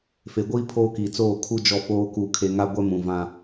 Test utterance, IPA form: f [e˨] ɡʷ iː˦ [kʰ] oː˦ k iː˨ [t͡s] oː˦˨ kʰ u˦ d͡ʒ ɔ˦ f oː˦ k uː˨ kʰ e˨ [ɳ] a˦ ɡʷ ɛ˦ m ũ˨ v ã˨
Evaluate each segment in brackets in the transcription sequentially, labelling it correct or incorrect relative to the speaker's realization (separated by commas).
correct, incorrect, correct, incorrect